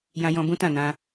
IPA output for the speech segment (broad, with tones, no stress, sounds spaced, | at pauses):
j ã˦ j ɔ̃˦ b ũ˦ t ã˦˨ n ã˧